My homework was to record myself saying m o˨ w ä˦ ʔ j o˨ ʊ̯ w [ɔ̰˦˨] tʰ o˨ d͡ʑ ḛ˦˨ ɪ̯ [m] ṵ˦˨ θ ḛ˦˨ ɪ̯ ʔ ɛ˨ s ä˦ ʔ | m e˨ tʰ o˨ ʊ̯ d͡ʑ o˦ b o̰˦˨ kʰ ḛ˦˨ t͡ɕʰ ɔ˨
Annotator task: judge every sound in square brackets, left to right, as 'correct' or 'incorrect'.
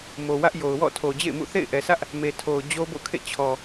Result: correct, correct

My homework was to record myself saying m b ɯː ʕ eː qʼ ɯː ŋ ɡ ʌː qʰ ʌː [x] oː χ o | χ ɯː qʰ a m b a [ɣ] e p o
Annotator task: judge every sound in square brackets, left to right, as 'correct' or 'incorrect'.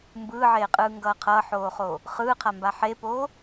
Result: incorrect, incorrect

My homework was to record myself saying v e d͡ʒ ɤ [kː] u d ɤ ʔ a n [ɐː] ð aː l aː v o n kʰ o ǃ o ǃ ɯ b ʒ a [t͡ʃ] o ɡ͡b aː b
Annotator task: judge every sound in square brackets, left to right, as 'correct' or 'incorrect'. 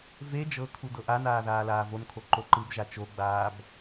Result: incorrect, incorrect, correct

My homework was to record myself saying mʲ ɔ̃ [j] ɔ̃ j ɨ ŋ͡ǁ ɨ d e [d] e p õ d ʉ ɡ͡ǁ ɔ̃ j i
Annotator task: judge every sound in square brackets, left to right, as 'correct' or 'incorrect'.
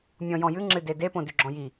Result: correct, correct

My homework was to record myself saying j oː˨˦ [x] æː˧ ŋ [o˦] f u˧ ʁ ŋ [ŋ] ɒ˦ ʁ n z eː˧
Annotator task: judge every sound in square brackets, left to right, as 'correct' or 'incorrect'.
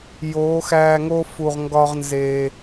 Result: correct, correct, incorrect

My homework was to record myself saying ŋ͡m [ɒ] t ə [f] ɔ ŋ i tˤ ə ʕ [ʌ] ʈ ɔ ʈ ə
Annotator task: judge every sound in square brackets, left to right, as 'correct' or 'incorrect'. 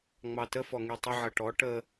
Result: incorrect, correct, correct

